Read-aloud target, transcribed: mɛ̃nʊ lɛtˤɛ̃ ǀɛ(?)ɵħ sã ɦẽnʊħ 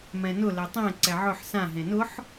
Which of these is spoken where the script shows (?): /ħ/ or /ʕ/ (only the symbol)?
ʕ